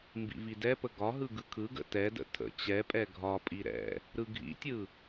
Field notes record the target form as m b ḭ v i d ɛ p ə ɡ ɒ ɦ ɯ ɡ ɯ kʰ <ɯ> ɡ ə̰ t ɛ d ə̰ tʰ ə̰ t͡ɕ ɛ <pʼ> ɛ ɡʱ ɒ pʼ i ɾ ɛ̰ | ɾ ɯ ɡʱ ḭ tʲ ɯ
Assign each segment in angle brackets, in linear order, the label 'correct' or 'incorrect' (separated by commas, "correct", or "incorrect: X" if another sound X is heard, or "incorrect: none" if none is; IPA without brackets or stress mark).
correct, correct